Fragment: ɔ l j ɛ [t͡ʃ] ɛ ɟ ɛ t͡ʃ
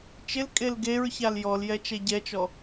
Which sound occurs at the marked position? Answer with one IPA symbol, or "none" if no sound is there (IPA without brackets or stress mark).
t͡ʃ